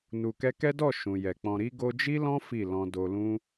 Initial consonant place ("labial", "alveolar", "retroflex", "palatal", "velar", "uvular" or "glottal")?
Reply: alveolar